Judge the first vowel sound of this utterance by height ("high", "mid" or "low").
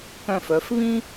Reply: mid